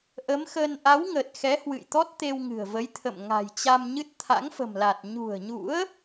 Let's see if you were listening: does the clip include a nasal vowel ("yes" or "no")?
no